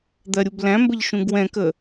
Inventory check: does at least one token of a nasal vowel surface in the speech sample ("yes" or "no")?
yes